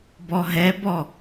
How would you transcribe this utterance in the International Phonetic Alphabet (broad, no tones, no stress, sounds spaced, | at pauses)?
b ɔ ɦ ɛ b ɔ